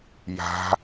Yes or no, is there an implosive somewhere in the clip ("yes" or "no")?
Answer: no